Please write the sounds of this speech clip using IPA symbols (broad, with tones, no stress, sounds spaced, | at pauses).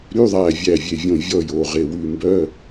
ɾ y˧˥˧ ðˤ æ˧˩ vʲ æ˧˩ vʲ e˧˩ vʲ õ˧˩ vʲ ɔ˧˩ j o˧˩ ʁ e˧˩ w ʉ˧˩ m b œ˧˥˧